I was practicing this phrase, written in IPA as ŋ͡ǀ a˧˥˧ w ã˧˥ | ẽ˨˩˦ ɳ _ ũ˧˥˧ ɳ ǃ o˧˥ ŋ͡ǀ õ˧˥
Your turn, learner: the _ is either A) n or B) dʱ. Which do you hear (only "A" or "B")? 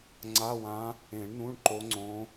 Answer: A